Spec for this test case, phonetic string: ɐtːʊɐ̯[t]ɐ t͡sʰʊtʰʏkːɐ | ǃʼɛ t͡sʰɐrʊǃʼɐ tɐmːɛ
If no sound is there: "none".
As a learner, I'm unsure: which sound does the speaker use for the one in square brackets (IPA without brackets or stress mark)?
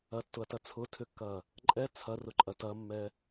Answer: t